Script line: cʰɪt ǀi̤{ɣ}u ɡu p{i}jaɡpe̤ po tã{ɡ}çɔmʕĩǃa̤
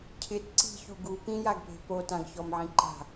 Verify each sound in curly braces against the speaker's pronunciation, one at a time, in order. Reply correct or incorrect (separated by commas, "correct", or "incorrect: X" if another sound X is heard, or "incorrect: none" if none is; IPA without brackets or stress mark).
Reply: incorrect: ç, incorrect: ĩ, correct